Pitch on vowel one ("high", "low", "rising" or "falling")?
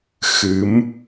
rising